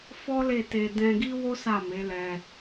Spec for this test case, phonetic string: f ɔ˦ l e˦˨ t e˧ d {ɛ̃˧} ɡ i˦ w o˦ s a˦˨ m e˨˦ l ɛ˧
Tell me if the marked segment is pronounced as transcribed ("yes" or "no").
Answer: yes